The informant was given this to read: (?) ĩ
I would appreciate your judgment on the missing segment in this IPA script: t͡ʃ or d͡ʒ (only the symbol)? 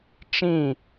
t͡ʃ